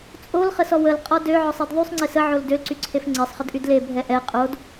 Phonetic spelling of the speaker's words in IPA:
t͡sʼolχəsɔ wəlqʼɔ døʕɔsˤed ðˤysˤŋ͡ǀes əʕol dølǀyǀʰef ŋ͡ǀesˤχədʔyd lebʱɛ ʔɛ qʼod

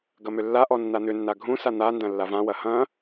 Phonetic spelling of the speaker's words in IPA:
ɡɐmʏlːaʔɔ nːan̪ʏnːa ɡʱũsa n̪andɐ̃ lːavãwɐ hɐ̃

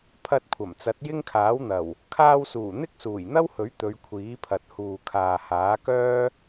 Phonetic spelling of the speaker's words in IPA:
pʰɐ˧t̚kʷʰɐ˨˩mt͡sɐ˨˥t̚ jɪ˥ŋkʰaː˨˥wn̪ɐ˨˩w | kʰaː˧wsuː˨˩ n̪ɪ˥k̚suː˨˩jn̪ɐ˥whɵ˨˥ɥ t̪ɵ˨˧ɥkʷʰiː˨˥pʰɐ˨t̚huː˨ kʰaː˨haː˨˥kœː˥

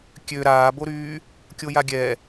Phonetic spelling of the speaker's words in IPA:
kʲø ɾaːboɾyː | kʲojaɡʲɛ

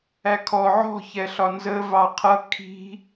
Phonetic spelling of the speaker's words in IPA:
ækʰɔ ʕɔ̤ çɛɬɒnzə vɑqʰʌ kʰi̤

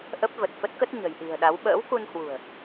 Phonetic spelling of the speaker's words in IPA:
ʔə˦˥p̚və˨˩t̚fə˦˥t̚kə˦˥t̚ ɲə̤˨˩jɗi̤˨˩ə̯ɗa˨˦w ɓə̰ː˧˥wku˧nhwṳ˨˩ə̯

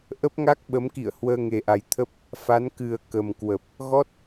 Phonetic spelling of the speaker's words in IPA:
ʔə˦˥p̚ŋa˦˥k̚ɓə˨˦mkḭ˧˨ə̯ hwəː˧ŋe˨˩ʔa˨˩j t̪ʰə˦˥p̚ | fa˨˦nkɨ˨˩ə̯ kə˨˩mkwə˨˩p̚ | ɣɔ˦˥t̚

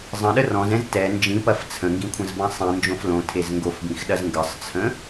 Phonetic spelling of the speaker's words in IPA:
zˤə̃ɗə rɔ̃zɛ̃z tɛ nd͡ʒĩpɐf t͡sʰə̃ŋɡĩkʷʰə̃zbɐ̃ sˤĩnd͡ʒõf lõtʰez ŋɡofbĩxɗɐz ŋɡəsˤt͡sʰə̃

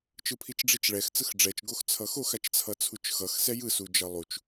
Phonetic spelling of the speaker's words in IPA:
t͡ʃɯpʰit͡ʃɖ͡ʐit͡ʃɭɛx t͡sɯxɖ͡ʐɛt͡ʃ ɡoxt͡sʰʌxox at͡ʃt͡sʰʌt͡sʰut͡ʃxʌx sɛjɯ sud͡ʒʌlˠut͡ʃ

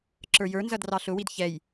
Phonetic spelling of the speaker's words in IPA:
ǁə˞jə˞nzʌd rɑɬʊwid çɛj

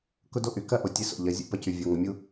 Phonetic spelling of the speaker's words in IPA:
kʊ˦do˦ʔy˨ kɐ˦ ʔo˨tʲe˦so̰˨ ʎɐ˨˦ zʲṵ˦ pɐ˦cy˨ vʲo˨ ŋə˨mʲu˦

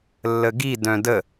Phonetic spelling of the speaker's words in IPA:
lːəɡi dœ̃də

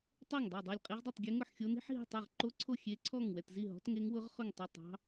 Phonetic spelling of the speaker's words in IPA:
tˤɛ˥˨ŋdˤɑ˥˨ dˤɛ˥˨lʲqʼi˦˥ʁdˤi˥˨tˤɡʲe˦˥ ŋʊ˥˨ħxʲo˦˥ni̤˦˥ħɦi̤˥˨ tˤe˥˨ʁǃo˦˥ǀʰo˥˨ xʲe˦˥ǀʰɔ˥˨ŋwɛ˥˨t zi˥˨ɦɔ̤˦˥tŋe˦˥ŋwʊ˦˥ʁ χʊ˥˨ŋtˤʏ˥˨tˤɑ̤˦˥

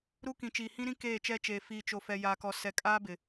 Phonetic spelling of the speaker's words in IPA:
ɾu˦kĩ˨ t͡ʃiː˨hĩ˦ɾĩ˦ keː˦˨t͡ʃɛ˦t͡ʃeː˨ fiː˨t͡ʃo˨fɛ˨ jaː˨kɔ˨ sɛ˨ kʼaː˦bɪ˨

